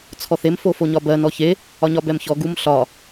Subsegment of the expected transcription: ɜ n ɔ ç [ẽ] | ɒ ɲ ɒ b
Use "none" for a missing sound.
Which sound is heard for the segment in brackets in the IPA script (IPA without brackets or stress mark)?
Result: e